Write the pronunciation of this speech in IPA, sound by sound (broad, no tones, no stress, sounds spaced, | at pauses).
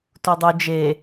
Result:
t u dˤ u d͡ʒ e